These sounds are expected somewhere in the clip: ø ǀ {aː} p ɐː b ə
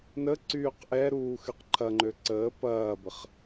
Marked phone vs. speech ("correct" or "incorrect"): incorrect